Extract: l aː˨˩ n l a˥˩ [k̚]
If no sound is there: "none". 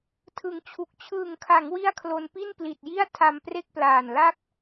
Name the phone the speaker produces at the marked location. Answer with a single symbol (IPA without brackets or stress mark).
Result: k̚